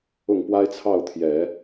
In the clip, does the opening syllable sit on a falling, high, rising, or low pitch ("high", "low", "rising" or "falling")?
falling